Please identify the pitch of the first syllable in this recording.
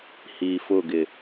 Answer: low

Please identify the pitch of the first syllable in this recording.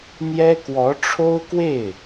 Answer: high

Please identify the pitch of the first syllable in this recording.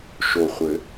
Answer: low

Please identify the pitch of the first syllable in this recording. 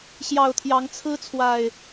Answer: low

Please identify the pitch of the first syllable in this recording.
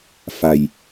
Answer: low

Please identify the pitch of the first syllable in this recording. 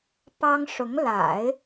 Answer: high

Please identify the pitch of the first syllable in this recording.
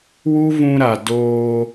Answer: high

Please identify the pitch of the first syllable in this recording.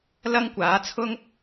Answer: high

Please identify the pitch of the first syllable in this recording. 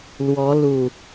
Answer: rising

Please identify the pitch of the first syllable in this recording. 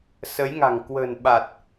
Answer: rising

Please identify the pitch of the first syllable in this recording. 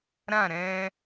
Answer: falling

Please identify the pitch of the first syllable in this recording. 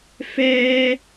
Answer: high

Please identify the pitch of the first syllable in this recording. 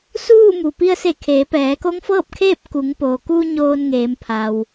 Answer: falling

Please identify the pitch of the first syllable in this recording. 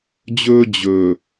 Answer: high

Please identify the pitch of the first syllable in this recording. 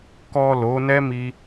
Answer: low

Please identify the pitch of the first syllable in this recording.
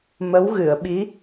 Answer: rising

